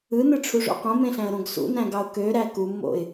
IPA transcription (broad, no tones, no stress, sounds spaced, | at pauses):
ɯ n ɯ ʈ͡ʂʰ u ʐ o̰ q õ m ẽ ɬ æ̃ ə̯ ɾ õ ɡ s ṵ n æ̃ ɡ ɑ ʊ̯ k ø ɾ æ k u mː o̰ ɪ̯